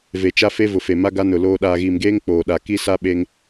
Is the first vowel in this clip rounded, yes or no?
no